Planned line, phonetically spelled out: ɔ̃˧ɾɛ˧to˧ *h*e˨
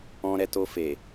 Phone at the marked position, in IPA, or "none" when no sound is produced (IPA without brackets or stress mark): f